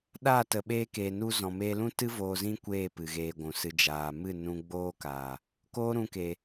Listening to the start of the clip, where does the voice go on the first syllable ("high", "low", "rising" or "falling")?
falling